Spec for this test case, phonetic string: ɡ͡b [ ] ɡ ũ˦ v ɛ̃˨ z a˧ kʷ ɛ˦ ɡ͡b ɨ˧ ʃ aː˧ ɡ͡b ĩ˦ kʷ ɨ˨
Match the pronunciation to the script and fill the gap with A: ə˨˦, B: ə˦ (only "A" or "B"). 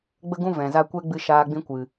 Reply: B